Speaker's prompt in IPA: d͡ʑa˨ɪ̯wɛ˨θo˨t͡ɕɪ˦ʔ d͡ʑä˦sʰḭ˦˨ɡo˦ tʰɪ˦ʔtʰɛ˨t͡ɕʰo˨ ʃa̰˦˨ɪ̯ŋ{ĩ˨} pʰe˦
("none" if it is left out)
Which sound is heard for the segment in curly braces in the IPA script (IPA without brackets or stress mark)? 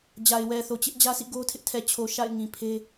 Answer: ĩ˨